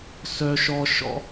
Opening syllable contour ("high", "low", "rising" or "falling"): high